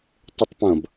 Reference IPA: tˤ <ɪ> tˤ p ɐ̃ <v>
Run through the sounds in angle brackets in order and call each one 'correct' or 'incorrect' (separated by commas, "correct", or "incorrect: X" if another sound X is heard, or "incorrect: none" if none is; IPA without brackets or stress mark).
correct, incorrect: b